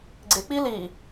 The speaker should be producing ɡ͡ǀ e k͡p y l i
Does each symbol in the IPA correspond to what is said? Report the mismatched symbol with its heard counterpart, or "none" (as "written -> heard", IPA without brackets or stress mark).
y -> i